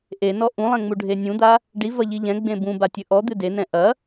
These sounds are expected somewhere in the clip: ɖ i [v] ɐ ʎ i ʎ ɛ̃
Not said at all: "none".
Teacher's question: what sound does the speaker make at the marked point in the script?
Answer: v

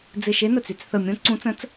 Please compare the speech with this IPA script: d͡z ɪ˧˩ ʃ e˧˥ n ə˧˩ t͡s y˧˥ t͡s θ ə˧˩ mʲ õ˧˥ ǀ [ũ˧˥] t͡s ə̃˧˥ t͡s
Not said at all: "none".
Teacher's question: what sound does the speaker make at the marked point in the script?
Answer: ũ˧˥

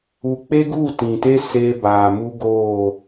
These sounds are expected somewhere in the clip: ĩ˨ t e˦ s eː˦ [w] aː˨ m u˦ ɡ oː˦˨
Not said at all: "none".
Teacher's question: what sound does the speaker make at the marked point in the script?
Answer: b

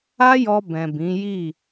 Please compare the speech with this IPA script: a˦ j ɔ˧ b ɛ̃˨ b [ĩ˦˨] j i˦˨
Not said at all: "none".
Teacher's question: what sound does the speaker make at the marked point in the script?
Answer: ĩ˨˦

